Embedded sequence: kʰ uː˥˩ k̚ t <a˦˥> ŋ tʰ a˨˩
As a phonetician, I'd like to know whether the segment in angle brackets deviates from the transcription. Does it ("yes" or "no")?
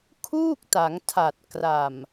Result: yes